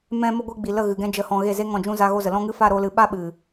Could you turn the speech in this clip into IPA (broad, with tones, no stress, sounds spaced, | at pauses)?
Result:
m ɛ̃˧ m ə˧ ɡʷ ɨ˧ ɡ͡b i˨ l ə˦˨ ɣ ɨ˨ ɡ ɛ̃˧ d͡ʒ ə˨ h ɔ̃˨ ɣ e˦˨ z e˦ ŋ ɔ̃˦˨ d͡ʒ ũ˦ z a˧ ɣ o˧ z ə˨ l ɔ̃˦ ŋ ɨ˦ f a˦˨ ɾ o˧ l ɨ˨ ɓ a˧ ɓ ɨ˨